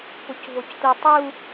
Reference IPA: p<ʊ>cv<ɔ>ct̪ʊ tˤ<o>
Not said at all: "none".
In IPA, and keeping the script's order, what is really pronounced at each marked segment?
ʊ, o, u

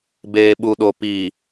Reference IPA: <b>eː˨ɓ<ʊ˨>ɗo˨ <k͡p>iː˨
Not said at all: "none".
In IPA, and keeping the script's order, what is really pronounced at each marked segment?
b, u˨, p

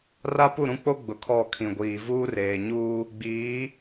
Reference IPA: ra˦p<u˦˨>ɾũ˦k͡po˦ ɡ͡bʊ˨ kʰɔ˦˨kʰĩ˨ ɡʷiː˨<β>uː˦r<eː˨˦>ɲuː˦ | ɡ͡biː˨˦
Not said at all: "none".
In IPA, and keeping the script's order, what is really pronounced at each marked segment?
u˦˨, v, eː˨

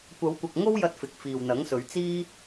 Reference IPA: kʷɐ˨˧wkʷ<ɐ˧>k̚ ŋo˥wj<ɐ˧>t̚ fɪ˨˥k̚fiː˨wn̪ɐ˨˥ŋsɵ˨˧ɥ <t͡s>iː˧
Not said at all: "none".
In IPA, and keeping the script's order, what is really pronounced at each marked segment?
ɐ˨, ɐ˧, t͡s

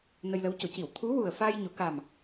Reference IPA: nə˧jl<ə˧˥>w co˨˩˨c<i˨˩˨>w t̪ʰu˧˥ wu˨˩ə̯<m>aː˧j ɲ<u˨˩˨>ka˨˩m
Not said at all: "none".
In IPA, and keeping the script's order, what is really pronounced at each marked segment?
ə˧˥, i˨˩˨, f, u˨˩˨

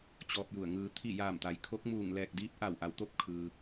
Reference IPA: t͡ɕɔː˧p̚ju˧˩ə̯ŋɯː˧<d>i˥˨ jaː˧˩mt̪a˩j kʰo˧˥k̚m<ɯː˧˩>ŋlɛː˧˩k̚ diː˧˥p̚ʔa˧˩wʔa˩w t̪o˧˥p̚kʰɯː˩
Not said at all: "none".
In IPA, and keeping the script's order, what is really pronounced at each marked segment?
t̪ʰ, uː˧˩

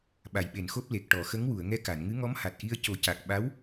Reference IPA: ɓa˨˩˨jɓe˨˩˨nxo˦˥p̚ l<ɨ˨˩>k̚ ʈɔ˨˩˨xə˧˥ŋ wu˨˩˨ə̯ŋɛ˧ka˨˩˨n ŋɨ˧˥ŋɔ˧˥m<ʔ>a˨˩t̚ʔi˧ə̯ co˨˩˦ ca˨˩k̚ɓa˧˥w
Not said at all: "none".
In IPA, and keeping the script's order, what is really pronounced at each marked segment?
e˨˩, h

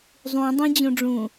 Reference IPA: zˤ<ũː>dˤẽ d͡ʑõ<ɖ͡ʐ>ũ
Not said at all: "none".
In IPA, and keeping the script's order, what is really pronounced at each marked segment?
ũ, ɖ͡ʐ

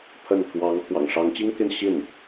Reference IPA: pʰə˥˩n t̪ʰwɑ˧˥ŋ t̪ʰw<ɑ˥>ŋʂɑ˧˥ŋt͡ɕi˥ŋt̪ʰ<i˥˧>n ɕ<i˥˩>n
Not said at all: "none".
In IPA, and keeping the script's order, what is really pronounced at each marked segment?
ɑ̰˨˩, i˥˧, i˥˩

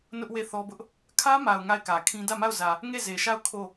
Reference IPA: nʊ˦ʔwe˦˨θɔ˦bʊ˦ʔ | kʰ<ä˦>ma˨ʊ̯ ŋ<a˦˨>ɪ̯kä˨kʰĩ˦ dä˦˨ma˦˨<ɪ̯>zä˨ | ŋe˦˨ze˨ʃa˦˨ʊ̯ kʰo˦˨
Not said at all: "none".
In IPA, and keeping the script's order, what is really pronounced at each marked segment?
ä˦, a˦˨, ʊ̯

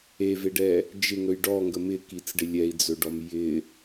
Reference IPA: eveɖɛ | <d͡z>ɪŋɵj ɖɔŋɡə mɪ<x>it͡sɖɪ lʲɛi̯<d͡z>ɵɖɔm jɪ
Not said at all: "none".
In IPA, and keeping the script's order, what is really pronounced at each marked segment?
d͡ʒ, k, d͡z

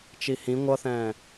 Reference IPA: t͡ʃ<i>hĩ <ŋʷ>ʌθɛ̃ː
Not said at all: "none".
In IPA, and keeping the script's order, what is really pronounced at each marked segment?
i, ŋʷ

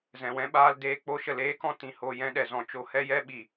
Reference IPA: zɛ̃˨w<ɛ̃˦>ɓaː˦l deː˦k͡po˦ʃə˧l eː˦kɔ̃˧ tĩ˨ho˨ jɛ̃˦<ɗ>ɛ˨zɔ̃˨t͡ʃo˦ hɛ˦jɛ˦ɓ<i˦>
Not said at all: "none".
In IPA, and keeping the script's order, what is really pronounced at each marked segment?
ɛ̃˦, ɗ, i˨

